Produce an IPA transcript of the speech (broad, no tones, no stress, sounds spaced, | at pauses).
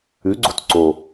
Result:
ʉ ɡ͡ǀ o̤ t ǀ o